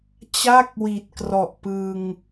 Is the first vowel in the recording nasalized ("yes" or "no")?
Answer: no